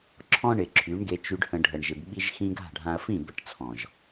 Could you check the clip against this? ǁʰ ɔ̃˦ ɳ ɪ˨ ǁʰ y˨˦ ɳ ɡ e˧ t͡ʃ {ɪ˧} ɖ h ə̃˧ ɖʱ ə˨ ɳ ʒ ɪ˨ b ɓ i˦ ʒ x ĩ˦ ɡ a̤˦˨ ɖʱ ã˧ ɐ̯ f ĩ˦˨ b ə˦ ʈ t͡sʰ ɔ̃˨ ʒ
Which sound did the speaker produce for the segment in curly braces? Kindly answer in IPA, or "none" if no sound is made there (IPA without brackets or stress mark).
y˧